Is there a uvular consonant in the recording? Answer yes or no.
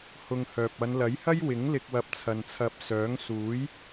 no